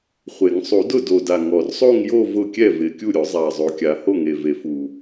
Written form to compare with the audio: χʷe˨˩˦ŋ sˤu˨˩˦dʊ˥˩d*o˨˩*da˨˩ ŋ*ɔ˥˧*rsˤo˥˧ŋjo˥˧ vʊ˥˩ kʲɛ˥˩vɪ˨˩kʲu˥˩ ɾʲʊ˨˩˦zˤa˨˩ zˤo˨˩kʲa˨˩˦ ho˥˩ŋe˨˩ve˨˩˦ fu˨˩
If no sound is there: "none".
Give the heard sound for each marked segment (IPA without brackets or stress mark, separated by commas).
o˨˩, ɔ˨˩